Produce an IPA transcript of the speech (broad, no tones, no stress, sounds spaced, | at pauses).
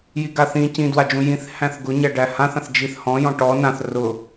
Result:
j i ɡ a θ ĩ c ĩ d w a d͡ʒ ũ j ĩ θ h æ̃ θ ɡ ʊ ɲ æ ɖ æ h ã θ ã θ d͡ʒ i θ h ɔ̃ j ɔ̃ ʈ ɔ n ã θ r ʊ